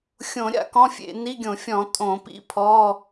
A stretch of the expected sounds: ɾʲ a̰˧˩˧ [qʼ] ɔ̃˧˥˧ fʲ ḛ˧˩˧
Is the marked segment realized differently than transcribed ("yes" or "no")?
yes